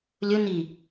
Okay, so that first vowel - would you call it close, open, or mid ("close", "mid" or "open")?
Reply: close